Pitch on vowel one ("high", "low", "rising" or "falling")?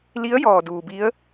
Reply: rising